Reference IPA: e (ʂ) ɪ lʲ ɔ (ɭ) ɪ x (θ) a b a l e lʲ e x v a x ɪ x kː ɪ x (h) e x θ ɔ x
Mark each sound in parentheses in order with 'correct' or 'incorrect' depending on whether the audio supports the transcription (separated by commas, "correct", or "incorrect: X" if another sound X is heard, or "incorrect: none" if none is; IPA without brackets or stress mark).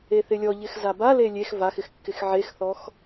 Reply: incorrect: θ, incorrect: ʎ, incorrect: z, incorrect: ʕ